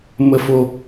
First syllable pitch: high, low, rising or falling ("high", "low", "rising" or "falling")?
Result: low